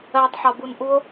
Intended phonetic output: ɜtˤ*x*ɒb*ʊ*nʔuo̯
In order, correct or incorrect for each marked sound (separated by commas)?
incorrect, incorrect